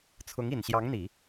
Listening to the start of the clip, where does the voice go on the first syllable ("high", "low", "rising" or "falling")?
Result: rising